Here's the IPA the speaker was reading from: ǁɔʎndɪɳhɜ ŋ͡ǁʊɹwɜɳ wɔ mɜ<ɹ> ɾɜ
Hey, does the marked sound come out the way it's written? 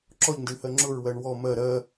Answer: no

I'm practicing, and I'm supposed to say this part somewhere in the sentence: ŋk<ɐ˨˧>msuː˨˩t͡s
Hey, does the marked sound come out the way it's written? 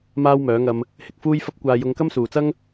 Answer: no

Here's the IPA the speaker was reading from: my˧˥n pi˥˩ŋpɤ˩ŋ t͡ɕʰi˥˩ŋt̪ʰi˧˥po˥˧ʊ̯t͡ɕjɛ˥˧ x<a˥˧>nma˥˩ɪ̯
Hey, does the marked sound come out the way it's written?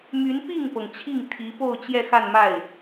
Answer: yes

